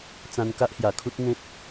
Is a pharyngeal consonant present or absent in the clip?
absent